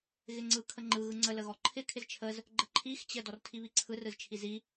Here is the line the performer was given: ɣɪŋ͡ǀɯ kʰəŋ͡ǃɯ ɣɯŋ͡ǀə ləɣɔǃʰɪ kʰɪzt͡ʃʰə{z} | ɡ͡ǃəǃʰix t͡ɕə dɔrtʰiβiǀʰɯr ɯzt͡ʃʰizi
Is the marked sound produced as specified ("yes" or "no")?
yes